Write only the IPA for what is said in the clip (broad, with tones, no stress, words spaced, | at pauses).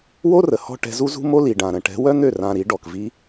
wo˦rə˨ hɔ̤˦ ʈɛ̤˧zu˦ zṳ˦mo˦li˨ɖã˨ ɾə̃˨ʈɛ̤˨˦ wœ˦n̪ø˦˨ rã˧ ɾi˨˦ɖɔ˨k vi˦